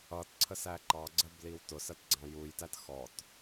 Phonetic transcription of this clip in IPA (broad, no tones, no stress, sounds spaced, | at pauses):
ʌ t ǀʰ ə s æ ǃ ɑ ɡ͡ǀ ɜ b l i w t ʊ s ɜ t ɡ͡ǀ ɑ̃ j u j t æ t x ɔ t